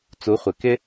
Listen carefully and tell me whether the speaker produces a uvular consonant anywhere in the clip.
yes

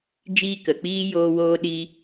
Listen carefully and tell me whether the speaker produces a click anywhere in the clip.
no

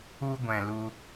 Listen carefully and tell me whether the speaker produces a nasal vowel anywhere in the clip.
yes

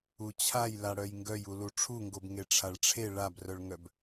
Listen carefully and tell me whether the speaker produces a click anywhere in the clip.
no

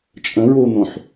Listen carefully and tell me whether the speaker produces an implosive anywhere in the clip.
no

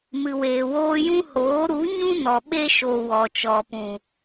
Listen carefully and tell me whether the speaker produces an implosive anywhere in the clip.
yes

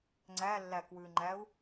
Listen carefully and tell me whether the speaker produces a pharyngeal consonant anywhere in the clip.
no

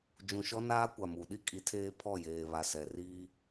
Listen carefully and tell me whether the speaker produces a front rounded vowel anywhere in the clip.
no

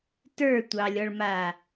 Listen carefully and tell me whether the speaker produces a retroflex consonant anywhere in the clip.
yes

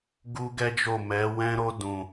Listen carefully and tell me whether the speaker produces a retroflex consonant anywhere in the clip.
no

